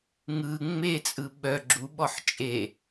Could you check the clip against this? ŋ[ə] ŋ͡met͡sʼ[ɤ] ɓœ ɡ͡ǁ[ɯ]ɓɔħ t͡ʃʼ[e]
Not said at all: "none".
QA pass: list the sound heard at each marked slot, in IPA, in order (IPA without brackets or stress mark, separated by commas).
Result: ɯ, ɯ, u, e